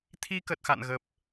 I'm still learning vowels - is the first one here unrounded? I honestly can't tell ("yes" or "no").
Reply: yes